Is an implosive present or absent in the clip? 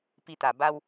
absent